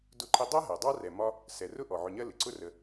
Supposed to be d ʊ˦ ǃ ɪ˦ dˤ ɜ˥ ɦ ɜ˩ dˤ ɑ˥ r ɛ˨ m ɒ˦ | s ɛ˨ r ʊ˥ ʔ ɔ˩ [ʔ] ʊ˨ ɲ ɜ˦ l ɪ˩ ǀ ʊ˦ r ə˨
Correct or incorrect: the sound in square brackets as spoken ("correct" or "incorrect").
incorrect